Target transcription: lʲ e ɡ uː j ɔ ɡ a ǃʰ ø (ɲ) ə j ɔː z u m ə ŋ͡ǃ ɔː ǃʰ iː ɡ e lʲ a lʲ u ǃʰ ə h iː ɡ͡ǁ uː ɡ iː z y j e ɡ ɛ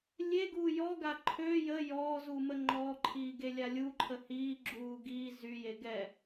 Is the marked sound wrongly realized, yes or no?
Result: yes